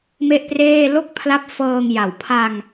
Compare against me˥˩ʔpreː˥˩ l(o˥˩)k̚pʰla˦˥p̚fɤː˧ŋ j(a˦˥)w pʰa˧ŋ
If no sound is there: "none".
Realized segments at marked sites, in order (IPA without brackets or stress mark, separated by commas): o˥˩, a˨˩